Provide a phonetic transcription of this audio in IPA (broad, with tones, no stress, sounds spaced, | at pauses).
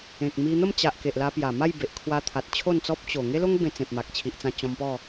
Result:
ẽ˨ k̚ m i˧ n̪ ə˥˧ m t͡ɕ a˨ ʔ k e˨ ʔ l a˧ p j a˨˩ m a˥˧ j b e˨ ʔ kʰ w a˧ t̪ʰ a˨ t̚ t͡ɕʰ o˥˧ n t͡s ɔ˦ p̚ t͡ɕ o˨˩ ŋ e˦ l o˦ ŋ b ẽ˧ t͡s ẽ˨ p̚ m a˨ k̚ t͡ɕʰ i˨ ʔ t͡s ã˧ t͡ɕ ɔ̃˧ m p ɔ˥˧